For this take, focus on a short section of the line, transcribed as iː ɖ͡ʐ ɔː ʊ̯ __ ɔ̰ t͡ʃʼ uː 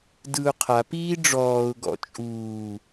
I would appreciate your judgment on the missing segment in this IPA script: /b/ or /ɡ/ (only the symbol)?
ɡ